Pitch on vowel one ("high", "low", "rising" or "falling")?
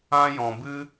high